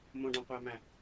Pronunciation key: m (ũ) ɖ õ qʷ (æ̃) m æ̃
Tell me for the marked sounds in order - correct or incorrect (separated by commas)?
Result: incorrect, incorrect